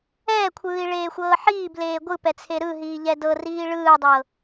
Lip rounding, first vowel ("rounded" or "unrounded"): unrounded